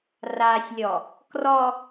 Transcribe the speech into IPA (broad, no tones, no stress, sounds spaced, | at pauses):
r a sʲ lʲ ɔ | k r ɔ